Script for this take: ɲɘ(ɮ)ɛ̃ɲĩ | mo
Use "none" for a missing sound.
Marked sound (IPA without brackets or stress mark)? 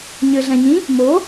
ɮ